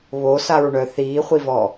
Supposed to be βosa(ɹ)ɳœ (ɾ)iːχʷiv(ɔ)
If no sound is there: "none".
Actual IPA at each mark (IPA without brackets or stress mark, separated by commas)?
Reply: ɹ, θ, ɔ